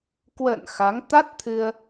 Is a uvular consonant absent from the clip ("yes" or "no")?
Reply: yes